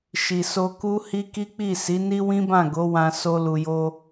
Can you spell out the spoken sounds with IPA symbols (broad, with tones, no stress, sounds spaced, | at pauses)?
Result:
ʃ i˨ s o˧ k u˦ h i˦ k i˦ k͡p i˦˨ s i˨˦ n i˦ w ĩ˦ b ã˦˨ ɡ o˨˦ w ã˧ s o˧ l u˨ j o˧